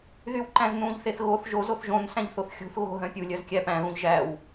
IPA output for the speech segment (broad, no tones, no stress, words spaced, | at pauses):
ðywǃæ̃znũʎθeθ ɣoθ ʒoz oθʒõn sæ̃ʎθoθxʲṳθ ɣo̤ɦœ̃ pʲulʲœz kʲæpæ̃ ɣũʎʒæw